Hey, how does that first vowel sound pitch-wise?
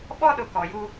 high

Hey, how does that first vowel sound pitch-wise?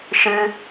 high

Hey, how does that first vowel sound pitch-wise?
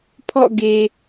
falling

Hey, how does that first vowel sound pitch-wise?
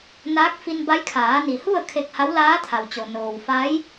rising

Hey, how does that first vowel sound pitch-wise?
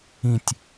falling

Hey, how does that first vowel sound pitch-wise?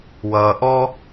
low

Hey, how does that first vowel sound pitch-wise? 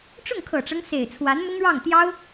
falling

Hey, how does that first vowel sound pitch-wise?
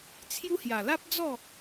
high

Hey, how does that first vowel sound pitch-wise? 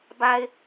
low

